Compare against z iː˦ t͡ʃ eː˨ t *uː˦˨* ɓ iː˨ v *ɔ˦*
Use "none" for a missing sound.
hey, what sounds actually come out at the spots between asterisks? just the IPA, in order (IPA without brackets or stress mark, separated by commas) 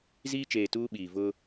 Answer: uː˦, ʊ˦